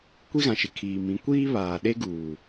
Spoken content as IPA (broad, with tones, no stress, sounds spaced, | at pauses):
kʷ i˦ ɣ ã˨ ʃ ɪ˨ kʰ iː˨ m ĩ˨˦ kʷ iː˦ β aː˨ ɗ e˦ ɡ uː˨